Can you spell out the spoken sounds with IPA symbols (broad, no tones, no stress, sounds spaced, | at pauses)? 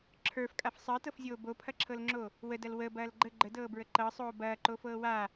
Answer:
ǁʰ ə˞ f kʼ a f sˤ əː t ɤ f zʲ oː b o pʰ ɐ ǁʰ ɤ l ŋ͡ǁ o | w ə d ɐ l w ə b ɐː l ɡ͡ǃ ə ɡ͡ǃ ə d ɤː b ɹ ə ǃ ɤ sˤ oː b ɐː ǃ o f ɤː w a